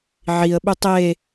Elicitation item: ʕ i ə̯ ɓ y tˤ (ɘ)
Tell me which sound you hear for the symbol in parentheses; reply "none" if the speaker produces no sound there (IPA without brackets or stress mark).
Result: e